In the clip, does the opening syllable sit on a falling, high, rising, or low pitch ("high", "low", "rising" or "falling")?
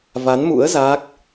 rising